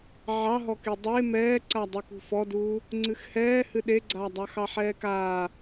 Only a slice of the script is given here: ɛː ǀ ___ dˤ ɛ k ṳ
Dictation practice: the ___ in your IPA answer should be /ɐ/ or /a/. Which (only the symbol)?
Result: a